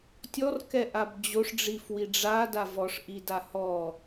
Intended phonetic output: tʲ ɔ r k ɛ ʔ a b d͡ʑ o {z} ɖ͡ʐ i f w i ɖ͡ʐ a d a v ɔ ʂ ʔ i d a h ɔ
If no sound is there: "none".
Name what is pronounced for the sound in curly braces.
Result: ʂ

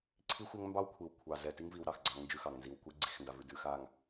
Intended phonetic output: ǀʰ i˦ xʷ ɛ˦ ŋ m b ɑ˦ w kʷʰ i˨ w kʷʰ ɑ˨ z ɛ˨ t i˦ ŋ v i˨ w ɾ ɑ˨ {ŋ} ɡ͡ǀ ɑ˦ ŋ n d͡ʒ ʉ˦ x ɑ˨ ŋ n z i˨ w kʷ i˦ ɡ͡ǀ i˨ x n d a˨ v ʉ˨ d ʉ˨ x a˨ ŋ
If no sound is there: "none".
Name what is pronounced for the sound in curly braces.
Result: x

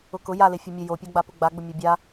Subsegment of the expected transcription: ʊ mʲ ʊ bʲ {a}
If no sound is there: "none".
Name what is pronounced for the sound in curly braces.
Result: a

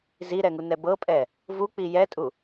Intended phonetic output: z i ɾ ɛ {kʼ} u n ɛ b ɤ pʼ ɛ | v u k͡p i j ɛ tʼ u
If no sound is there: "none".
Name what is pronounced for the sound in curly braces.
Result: ŋ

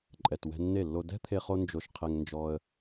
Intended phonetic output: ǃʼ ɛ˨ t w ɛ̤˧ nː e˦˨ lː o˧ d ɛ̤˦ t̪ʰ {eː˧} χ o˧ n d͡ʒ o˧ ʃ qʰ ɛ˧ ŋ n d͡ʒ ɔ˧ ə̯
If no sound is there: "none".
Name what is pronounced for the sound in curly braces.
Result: e˧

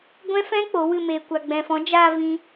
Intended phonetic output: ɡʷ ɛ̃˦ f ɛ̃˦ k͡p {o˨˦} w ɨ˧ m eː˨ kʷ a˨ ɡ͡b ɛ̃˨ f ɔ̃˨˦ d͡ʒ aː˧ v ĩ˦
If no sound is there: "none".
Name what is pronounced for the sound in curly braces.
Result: o˨˦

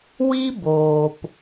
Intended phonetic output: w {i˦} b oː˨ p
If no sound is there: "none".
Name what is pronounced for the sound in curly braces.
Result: i˦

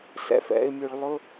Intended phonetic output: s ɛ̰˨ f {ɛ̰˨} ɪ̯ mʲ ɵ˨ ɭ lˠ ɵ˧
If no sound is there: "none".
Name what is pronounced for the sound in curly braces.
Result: ɛ̰˨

